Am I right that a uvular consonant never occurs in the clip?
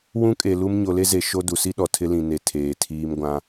yes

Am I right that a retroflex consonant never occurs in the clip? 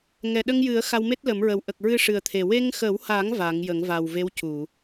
no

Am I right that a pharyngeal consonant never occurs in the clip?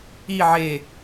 no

